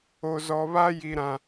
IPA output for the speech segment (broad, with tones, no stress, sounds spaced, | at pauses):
o˨ z ɔ˨ β a˦ j i˨ ɾ ã˨